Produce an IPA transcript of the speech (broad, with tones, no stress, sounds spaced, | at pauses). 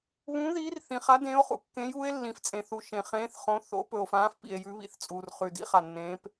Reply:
β ũː˨˦ ð iː˨˦ r θ ĩ˩ χ a˨˦ d ẽː˨˦ o̯ χ ṵ˩ kː ẽ˨˦ j uː˨˦ e̯ lː ĩ˩ f t͡sʼ ẽ˩ θ u˩ ʃ ẽ˩ χ ẽː˨˦ θ χ õ˨˦ θ o̰˨˦ p ɵ˩ o̯ f ãː˨˦ f p ḭ˩ e̯ j ʉ˨˦ β ḭ˨˦ θ t͡sʼ uː˩ r χ ʉ˩ d ḭ˨˦ χ a˩ nː ẽː˨˦ p